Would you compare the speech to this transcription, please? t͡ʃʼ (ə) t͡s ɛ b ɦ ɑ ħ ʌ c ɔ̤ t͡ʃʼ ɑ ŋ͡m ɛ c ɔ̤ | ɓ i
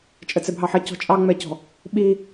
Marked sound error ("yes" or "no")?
no